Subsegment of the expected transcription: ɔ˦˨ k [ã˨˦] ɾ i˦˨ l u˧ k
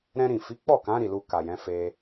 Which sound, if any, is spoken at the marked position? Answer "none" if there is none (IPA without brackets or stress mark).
ã˨˦